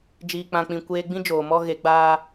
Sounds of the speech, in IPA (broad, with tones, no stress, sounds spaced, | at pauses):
d͡ʒ iː˨ k͡p ã˨ k͡p ĩ˨ kʷ eː˧ ɡ͡b ĩ˦ d͡ʒ oː˨ m ɔ˦ ɣ e˨˦ ɡ͡b aː˦